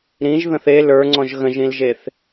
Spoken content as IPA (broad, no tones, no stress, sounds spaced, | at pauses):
ɾ ĩ ʒ ð ə̃ θ e l ə˞ ŋ͡ǀ ɔ̃ ʒ ɣ ə̃ ʒ ĩ l ʒ e θ